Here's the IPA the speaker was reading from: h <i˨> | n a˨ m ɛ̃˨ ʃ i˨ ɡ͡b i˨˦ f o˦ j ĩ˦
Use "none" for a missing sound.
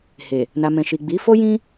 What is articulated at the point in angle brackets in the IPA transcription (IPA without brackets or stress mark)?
e˨